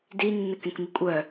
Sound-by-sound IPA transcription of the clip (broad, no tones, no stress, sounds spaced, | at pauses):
d i nː ə k ẽ k m i kʷʼ œ